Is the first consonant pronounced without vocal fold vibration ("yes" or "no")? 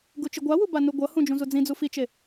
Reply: no